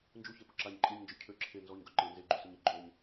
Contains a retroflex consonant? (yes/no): no